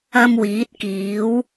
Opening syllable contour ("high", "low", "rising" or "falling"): high